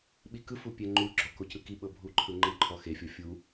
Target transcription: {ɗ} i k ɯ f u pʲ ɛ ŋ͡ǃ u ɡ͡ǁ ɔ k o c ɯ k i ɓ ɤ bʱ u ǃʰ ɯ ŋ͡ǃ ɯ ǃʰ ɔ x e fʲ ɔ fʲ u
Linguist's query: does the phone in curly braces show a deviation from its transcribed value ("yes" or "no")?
yes